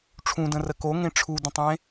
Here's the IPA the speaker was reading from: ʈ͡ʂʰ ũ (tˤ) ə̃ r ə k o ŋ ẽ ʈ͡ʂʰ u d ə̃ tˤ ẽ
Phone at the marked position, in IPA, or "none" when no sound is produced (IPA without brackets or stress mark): d